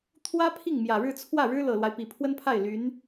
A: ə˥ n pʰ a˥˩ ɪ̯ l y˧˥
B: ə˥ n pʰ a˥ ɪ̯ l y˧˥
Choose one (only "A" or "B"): A